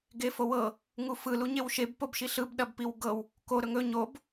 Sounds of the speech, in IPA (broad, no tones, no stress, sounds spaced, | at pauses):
ɡ e f o w ɤ | ŋ u f ɯ l u ɲ e w ʃ e b p o b ʃ i ɬ ɯ b ɗ ɐ b p i w ɡ ɤ w | k o ɾ ɵ ŋ ɵ ɲ o b